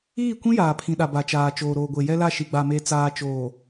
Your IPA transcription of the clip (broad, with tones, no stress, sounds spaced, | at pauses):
iː˦˨ kʷ ĩ˦ j aː˨ pʰ ĩ˨ ɗ a˨ b a˨ t͡ʃ aː˨ t͡ʃ oː˨ ɾ oː˨ ɡʷ e˨ j ɛ˦ l a˦˨ ʃ i˨ ɡ͡b a˨ m e˨ t͡s aː˨ t͡ʃ oː˨